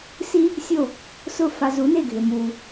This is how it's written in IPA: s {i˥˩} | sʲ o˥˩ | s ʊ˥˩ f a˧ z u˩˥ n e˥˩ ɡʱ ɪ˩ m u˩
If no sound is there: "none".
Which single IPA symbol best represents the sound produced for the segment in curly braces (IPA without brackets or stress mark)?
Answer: i˥